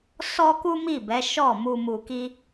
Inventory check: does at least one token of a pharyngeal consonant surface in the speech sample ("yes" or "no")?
no